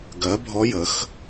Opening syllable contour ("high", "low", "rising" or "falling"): rising